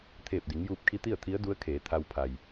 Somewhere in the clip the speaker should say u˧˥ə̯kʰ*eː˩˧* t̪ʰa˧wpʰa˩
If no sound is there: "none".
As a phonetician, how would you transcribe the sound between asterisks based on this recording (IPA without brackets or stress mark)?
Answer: eː˩˧